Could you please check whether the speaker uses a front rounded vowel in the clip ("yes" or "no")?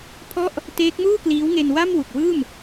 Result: no